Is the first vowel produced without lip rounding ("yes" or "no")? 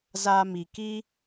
yes